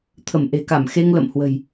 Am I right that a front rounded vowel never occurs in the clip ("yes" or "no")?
yes